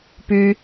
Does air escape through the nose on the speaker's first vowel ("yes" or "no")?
no